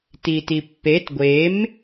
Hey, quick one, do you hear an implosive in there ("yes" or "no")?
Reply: no